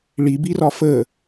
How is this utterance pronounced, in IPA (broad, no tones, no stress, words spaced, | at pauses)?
ɭibirɒ fə